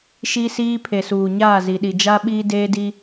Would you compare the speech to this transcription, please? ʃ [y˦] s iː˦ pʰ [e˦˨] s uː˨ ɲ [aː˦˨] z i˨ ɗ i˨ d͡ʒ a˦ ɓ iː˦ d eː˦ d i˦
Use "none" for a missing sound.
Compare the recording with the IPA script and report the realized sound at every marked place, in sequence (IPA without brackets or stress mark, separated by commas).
i˦, e˨, aː˦˨